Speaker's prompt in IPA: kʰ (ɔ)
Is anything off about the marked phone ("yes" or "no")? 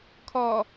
no